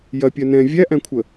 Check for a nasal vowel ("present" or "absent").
present